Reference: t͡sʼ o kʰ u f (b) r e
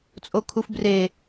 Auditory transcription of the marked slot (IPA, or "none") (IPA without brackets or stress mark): b